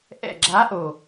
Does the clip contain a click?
yes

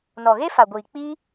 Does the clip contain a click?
no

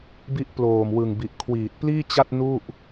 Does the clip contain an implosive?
no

